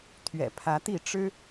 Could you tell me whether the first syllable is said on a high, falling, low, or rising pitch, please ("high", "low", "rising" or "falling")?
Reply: low